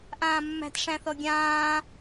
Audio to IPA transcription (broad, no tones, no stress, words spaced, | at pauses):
ʔãːmːæ̤t ʂæ̃θɔɡʲãː